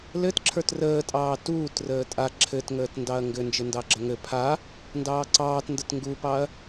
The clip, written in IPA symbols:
l ɘ t ǁʰ ə˞ t r əː tʼ ɑː t uː t r əː tʼ a ǁʰ ɘ t ŋ əː t n d ɑ ɐ̯ ŋ ɡ ɘ n d͡ʒ ɘ n d ɑ ɡ͡ǁ ə ŋ ɘ pʰ a | n d ɑː ǀ ɑː t n d ə t ŋ ɡ u p ɑ ɐ̯

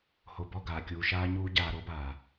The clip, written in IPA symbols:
h o˨ b ɔ˦˨ ɡ aː˨ kʲ uː˨ ʃ aː˧ ɲ uː˧ ɟ aː˨ ɾ o˦ b aː˨

